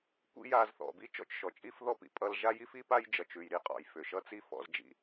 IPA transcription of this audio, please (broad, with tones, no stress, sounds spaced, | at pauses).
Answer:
kʷ ḭ˥ j aː˧ z θ ɔ̰˩ b i˥ t͡ʃ ɔ̰˥ t͡ʃ ʃ ɔ˩ t͡ʃʼ i˥ f ð ɔ˥ p ḭ˩ pʼ ʌː˧ l ʒ a˥ j i˥ f i˥ p a˥ j d͡ʒ ʌ˩ t͡ʃ ʉ˩ j ɾ i˥ qʼ ɔ̰˩ j f ʏ˩ ʃ ʌ˥ t͡s i˥ f ɔ̰˧ z d͡ʒ ḭ˧